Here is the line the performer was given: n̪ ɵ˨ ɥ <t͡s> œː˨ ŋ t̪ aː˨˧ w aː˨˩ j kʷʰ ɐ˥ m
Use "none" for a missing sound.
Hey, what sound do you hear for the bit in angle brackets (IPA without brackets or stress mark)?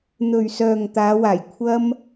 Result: s